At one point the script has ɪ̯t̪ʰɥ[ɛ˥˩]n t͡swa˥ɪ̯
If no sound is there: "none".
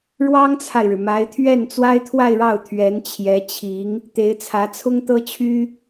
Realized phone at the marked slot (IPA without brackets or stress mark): ɛ˥˩